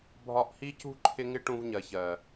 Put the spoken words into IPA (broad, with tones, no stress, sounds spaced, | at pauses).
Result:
bʱ ɒ˧ ʔ h i˦ c ṳ˦ ǃʰ ɪ˦ ŋ ɪ˦ ʈ ũ˧ v ɲ ɜ˨ ç ɜ˨